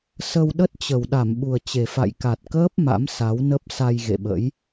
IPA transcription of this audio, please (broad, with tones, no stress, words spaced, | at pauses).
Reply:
sə˧w ɗə˦˥t̚t͡ɕə˨˩w ɗa˧˩mɓu˨˩ə̯t͡ɕe˨˩fa̰˧˨j ka˨˩t̚kəː˦˥p̚ ma̰˧˥msa˨˦wnə˦˥p̚ sa˧jɣḛ˧˨ɓə̰˧˥j